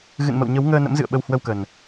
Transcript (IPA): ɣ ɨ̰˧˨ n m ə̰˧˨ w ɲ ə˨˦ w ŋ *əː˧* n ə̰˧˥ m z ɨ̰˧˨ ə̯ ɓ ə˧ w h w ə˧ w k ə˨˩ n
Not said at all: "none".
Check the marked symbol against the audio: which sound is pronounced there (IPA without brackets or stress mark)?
əː˧